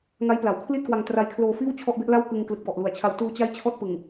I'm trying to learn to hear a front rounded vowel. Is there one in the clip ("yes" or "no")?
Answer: no